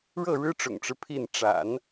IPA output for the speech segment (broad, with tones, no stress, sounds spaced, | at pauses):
ɻ ɤ˥˩ ɻ ɻ̩˥ ʈ͡ʂ ʊ̰˨˩ ŋ ʈ͡ʂ ɻ̩˦ pʰ i˥˩ n ʈ͡ʂ a̰˨˩˦ n